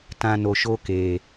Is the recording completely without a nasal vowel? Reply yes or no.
no